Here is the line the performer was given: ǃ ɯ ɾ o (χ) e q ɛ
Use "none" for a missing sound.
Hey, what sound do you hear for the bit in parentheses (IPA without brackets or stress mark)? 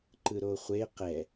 χʷ